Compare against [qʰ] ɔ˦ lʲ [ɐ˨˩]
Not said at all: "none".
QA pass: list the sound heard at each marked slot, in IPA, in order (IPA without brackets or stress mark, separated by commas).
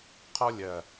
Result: qʰ, ɐ˨˩